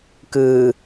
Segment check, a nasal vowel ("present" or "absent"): absent